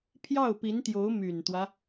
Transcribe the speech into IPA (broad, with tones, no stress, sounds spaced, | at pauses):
pʰ j ɑ˥˩ ʊ̯ p i˧˥ n t̪ j o˧˥ ʊ̯ m y˨˩ n t̪ w ä˦